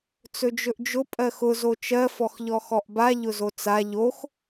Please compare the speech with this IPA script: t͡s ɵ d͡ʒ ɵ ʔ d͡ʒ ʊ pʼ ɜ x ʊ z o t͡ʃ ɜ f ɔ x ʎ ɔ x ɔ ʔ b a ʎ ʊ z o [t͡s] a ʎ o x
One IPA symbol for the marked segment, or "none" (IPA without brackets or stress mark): t͡s